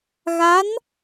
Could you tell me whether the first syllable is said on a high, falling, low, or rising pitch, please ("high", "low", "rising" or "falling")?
rising